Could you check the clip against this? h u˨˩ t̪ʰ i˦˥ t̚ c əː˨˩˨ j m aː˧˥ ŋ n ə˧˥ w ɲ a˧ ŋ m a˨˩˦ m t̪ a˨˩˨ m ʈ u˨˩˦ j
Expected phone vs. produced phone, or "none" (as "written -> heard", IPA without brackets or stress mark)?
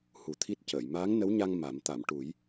none